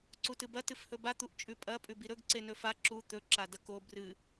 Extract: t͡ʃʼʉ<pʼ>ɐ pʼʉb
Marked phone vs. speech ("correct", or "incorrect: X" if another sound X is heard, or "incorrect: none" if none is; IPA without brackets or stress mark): correct